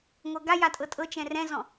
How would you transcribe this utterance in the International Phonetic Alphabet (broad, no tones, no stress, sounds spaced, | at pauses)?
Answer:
ŋʷ ɤ ɡ a j a tʼ ɤ tʼ ɤ t͡ʃ ɛ̃ r ɛ̃ z ɔ̃